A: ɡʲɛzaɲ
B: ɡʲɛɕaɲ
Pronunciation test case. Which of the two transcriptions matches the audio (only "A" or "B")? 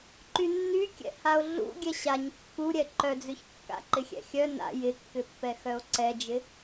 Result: B